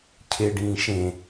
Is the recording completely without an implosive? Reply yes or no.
yes